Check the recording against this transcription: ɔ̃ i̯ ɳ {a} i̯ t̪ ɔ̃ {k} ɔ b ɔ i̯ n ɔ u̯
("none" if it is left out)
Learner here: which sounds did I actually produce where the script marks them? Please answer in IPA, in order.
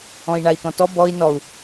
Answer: a, t

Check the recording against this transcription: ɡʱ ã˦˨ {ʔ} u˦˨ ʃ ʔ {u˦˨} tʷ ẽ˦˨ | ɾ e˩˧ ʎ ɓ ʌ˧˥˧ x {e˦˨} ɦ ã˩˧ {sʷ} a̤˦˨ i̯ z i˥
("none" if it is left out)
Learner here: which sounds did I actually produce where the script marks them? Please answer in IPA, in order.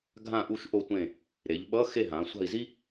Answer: ʔ, o˦˨, e˦˨, sʷ

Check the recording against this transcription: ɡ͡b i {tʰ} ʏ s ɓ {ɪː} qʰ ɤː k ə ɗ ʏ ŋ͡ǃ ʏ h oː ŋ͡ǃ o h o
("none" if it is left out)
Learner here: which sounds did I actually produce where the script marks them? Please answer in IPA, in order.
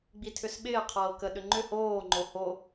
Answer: tʰ, ɪː

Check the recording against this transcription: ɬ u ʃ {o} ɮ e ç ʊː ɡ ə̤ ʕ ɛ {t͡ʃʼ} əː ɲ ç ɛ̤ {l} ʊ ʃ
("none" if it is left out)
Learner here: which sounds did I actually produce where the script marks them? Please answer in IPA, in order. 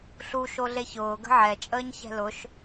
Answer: o, t͡ʃʼ, l

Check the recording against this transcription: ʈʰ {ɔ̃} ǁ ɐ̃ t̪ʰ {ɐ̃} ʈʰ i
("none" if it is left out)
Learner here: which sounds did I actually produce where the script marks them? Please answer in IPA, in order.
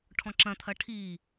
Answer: ɔ̃, ɐ

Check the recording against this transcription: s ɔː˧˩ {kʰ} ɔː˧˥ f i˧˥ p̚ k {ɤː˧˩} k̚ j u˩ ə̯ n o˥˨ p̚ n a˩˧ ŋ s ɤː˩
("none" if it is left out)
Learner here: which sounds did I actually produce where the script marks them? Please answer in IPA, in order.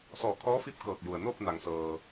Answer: kʰ, ɤː˧˩

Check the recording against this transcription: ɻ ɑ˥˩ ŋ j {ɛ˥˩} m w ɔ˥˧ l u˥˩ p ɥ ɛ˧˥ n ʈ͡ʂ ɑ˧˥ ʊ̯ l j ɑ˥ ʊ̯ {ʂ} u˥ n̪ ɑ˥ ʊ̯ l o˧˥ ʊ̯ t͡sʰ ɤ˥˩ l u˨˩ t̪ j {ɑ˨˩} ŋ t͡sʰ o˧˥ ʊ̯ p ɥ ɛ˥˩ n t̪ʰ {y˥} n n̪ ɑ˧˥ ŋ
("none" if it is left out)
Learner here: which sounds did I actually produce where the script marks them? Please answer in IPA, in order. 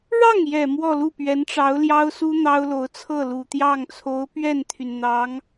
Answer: ɛ˨˩, s, ɑ˥˩, y˩

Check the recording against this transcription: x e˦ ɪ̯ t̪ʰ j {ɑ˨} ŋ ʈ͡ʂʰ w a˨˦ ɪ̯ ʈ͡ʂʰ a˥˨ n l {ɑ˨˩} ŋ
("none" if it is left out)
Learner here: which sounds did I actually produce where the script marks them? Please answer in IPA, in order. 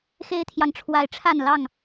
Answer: ɑ˨, ɑ˥˨

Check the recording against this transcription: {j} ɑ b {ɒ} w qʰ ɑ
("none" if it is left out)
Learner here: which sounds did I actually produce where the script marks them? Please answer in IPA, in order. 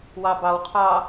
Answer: w, ɑ

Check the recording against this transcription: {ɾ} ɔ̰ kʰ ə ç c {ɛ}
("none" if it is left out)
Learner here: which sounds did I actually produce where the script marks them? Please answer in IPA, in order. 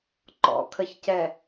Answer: ǃ, ɛ

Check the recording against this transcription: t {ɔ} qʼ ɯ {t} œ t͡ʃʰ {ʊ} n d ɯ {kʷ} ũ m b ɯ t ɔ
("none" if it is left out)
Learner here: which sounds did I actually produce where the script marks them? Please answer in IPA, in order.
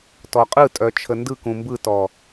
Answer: ɔ, tʼ, ə, k

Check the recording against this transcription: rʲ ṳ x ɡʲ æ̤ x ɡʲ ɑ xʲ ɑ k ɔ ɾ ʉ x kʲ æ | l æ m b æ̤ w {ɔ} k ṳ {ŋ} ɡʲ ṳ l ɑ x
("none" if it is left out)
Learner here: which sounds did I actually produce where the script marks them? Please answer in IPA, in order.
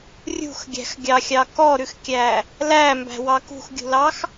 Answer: ɑ, x

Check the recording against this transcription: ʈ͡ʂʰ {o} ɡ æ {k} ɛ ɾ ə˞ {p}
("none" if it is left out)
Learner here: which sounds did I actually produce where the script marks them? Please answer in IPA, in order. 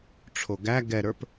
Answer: o, ɡ, p

